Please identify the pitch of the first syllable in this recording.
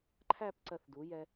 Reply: falling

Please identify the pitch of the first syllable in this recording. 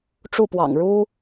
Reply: falling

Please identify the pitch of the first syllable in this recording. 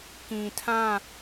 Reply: low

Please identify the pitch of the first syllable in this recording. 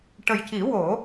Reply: low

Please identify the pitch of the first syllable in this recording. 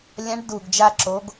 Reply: rising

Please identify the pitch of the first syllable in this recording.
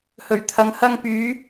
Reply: low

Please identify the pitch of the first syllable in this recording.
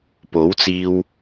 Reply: rising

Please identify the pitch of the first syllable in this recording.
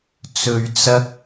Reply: low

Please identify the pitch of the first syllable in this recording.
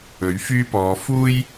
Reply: rising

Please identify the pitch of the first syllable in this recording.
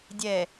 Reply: low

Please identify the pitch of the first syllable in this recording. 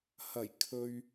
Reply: low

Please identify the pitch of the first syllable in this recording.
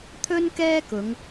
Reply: high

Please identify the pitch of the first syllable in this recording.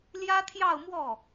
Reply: high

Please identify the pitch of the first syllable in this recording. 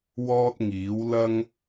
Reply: high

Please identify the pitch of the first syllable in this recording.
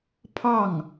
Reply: falling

